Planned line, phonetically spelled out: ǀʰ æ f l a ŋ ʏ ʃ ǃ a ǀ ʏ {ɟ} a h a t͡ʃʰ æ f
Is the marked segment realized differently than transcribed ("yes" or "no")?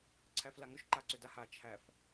yes